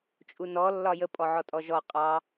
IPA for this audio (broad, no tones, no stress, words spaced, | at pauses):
t͡ʃʼunɔ lːɒjə pʼɔʕɔtʼɔʒɔ qʼɑ